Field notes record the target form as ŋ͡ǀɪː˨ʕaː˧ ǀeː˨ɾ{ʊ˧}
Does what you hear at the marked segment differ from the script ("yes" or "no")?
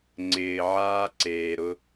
no